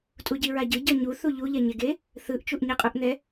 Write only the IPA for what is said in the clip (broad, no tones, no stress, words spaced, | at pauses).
tʼuɟiɹaɟɯ ɟʌɲu θuʎu ʎɛɲeɡe | θɯʔ t͡ʃuʔɲiqʼuʔn̪ɛ